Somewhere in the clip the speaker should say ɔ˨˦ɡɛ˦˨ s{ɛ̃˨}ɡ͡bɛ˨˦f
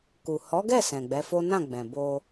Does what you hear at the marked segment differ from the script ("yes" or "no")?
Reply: no